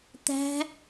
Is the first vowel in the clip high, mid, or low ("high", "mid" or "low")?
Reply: low